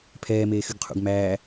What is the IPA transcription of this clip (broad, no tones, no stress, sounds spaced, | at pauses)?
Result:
pʰ ɛː m eː x y ɡ qʰ ṵ ɡ m æː